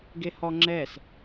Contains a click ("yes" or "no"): yes